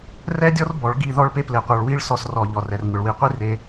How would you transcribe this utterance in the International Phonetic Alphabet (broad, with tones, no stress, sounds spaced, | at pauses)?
r ɛ˦ dʲ ɔ˦ r b ɔ˨˦ ɭ ɡ i˦˨ ð ɔ˦ ɭ p e˦ p l e˧ qʷ ə˞˧ ɭ w i˦ ɭ s ɔ˦ s r ɔ˧ ʎ ɔ˨ r ɛ˨ r ŋʷ ə˨ ɭ w i˨˦ qʷ i˦ r e˧